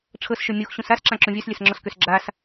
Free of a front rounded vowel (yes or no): no